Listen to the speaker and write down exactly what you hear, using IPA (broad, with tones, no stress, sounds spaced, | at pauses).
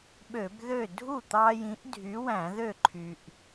ɓ ø˧˩˧ b ð ø˥˩ dʱ u˥˩ t̪ ɑ˦ j ĩ˨˥ ʔ dʱ y˨˥ w æ̃˧˩˧ ð ø˥˩ ǃʰ y˩ ʔ